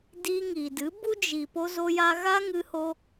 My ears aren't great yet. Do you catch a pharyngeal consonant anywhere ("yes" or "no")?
no